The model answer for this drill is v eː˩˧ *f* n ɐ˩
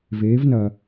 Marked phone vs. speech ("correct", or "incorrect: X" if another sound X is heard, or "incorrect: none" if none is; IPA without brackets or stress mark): incorrect: v